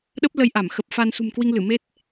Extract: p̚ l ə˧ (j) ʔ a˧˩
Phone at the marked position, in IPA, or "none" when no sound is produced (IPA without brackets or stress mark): j